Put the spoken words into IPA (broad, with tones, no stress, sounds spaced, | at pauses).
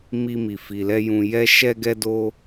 m i˧ m i˨ f i˨ l ɛ˧ j ũ˨ j ɛ˧ ʃ ɛ˧ ɡ ɛ˧ d o˧